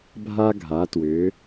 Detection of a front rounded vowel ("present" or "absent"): present